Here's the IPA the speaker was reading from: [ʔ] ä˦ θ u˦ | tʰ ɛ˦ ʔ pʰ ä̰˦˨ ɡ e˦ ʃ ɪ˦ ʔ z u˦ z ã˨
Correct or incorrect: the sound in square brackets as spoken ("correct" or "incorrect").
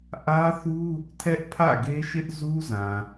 correct